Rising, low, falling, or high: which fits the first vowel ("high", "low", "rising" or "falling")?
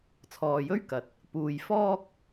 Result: low